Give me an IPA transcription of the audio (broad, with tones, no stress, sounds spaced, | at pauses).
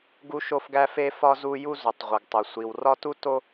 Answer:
ɡ u˥ ʃ o˥ f ɡ æ˥ f e˥ f ɒ˥ z u˥ j u˥ z u˩ tˤ ʁʷ e˩ ɡ tˤ o˩ sʷ i˩ w r ɒ˥ t u˥ t o˥